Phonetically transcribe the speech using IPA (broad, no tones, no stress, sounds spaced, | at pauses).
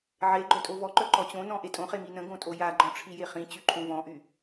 ʕ e ɡ͡ǃ œ tʼ o v ɔ ǃ œ ǃ ɔ t͡ɕ õ n ɔ̃ ʔ e tʼ õ χ e m i n ə̃ ɡ õ tʼ o j a ɡ͡ǃ ɔ̃ ʈ͡ʂʰ i j e χ ĩ t͡ɕ y ǃʰ õ v ɔ̃ ʔ y